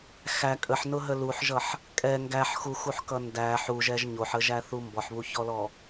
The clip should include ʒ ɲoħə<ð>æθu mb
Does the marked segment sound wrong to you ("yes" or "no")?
yes